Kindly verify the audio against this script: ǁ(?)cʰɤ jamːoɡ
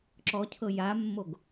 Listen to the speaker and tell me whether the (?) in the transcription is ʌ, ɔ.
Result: ɔ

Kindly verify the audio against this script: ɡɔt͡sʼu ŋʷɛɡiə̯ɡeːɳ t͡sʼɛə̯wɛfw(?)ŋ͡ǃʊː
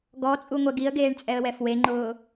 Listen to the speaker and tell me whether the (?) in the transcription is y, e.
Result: e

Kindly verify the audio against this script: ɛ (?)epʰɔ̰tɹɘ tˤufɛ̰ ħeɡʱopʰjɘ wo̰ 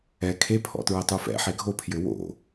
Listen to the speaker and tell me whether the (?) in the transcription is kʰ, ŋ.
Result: kʰ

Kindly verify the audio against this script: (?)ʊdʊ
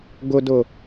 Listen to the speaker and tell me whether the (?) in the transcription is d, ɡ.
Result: ɡ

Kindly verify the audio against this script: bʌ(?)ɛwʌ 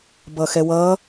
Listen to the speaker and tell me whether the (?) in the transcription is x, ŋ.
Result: x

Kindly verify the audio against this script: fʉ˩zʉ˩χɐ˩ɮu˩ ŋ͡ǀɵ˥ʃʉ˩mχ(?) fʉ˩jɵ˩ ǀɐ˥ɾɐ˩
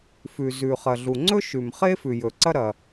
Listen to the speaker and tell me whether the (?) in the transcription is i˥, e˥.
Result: e˥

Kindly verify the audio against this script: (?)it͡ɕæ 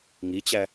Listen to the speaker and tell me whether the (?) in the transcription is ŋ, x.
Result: ŋ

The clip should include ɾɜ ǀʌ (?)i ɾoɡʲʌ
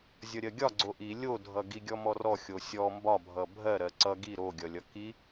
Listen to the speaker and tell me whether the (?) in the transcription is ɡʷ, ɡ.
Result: ɡ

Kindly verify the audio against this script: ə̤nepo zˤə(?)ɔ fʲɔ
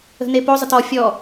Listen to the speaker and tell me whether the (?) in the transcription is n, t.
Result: t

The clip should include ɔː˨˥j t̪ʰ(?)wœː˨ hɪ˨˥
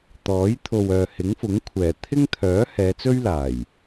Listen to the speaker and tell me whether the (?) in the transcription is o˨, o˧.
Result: o˨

